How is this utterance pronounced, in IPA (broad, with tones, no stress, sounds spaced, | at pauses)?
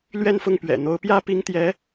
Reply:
l ɥ ɛ˥˧ n f ʊ˥˩ ŋ p ɥ ɛ̰˨˩ n̪ o˧˥ ʊ̯ p j ä˥ p i˥ ŋ t̪ j ɛ˧˥